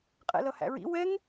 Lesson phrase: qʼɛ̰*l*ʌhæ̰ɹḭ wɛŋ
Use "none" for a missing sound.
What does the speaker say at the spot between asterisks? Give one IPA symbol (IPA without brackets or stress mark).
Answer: l